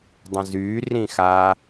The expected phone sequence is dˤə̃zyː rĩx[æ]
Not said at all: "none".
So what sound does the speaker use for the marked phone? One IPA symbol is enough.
a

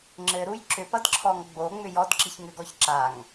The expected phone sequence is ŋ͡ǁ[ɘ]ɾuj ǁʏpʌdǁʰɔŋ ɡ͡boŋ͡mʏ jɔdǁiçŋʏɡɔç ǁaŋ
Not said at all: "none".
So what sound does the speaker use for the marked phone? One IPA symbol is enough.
ɘ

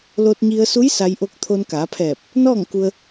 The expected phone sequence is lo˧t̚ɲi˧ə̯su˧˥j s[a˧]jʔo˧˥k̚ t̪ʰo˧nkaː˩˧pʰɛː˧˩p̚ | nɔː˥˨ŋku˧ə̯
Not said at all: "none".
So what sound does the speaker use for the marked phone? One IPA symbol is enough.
a˧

